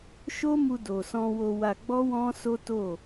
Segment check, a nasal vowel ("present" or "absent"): present